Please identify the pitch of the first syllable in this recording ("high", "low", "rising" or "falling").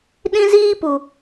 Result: high